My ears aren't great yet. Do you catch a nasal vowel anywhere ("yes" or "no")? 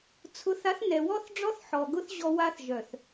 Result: no